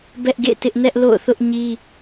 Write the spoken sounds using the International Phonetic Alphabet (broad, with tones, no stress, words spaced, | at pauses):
bɛ˦ʔɡḛ˦˨tɪ˦ʔ nɛ˦ʔlo̰˦˨ʊ̯θʊ˦ʔ ɲi˦